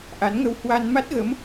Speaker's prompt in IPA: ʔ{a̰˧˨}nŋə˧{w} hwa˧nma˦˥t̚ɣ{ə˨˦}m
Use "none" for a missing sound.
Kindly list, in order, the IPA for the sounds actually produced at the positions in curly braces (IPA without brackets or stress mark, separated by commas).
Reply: a˨˦, w, ə˨˦